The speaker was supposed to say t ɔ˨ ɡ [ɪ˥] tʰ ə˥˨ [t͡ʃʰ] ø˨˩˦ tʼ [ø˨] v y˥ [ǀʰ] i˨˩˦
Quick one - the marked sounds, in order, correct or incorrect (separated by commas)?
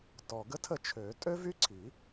incorrect, correct, incorrect, correct